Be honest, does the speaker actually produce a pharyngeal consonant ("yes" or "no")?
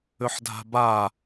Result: yes